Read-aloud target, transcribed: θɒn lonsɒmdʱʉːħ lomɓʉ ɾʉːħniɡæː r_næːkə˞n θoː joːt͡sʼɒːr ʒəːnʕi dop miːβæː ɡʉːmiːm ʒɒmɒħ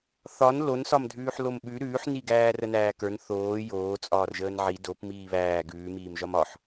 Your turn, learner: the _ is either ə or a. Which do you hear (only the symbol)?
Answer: ə